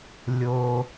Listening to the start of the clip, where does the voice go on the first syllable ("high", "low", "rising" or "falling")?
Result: low